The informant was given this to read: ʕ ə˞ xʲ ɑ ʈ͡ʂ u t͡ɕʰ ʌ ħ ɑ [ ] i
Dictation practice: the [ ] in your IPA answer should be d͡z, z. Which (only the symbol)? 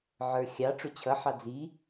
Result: d͡z